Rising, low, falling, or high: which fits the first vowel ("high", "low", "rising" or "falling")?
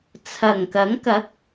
low